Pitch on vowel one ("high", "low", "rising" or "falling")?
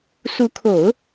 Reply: rising